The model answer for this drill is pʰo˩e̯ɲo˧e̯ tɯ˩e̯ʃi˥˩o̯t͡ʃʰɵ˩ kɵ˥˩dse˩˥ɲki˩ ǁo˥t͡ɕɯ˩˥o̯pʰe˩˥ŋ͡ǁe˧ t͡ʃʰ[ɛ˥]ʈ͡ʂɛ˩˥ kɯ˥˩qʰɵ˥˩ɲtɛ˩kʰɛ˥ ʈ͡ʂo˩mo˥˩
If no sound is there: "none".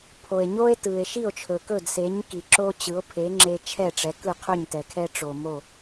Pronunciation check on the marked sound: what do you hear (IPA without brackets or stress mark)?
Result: ɛ˥˩